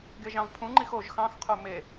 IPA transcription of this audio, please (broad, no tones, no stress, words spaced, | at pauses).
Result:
ɡeʒɑ̃vpʰũŋ͡ǃix oʒ xɑ̃xqʰo me